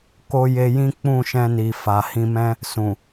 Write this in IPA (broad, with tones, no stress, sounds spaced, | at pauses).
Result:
k o˦ j e˧ j ĩ˦ k͡p ũ˦˨ ʃ ɛ̃˧ n i˨ f a˨ h ĩ˧ m ɛ̃˦ | s ũ˨